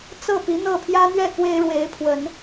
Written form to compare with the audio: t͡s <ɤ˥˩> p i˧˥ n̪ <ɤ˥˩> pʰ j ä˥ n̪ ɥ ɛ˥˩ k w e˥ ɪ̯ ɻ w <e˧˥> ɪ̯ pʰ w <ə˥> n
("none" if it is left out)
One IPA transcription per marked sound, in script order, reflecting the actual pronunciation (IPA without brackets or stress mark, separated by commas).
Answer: ɤ˥˩, ɤ˥˩, e˧˥, ə˨˩˦